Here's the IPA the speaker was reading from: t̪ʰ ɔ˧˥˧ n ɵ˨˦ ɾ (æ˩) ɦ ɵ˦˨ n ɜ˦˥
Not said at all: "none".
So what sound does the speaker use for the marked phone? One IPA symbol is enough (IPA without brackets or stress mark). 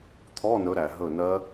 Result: æ˩